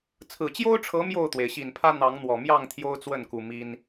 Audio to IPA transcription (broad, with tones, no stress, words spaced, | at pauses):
t͡sʰɹ̩˨˩t͡ɕjo˦ʊ̯ʈ͡ʂʰɤ˨˦ mjo˥˨ʊ̯t̪we˩ɪ̯ɕi˨˩npʰä˦ n̪ɑ˨˦ŋn̪wɔ˨˩mjɑ˥˨ŋ t̪ʰjo˦ʊ̯t͡swə˥˨nku˨˩ mi˦n